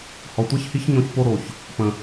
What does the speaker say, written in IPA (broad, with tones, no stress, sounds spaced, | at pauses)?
h ɔ˨ tʷ a˦ ç h i˦ ç ɲ ɔ̃˦ ç p o˦ ɾ o˨ ç | p ə̃˨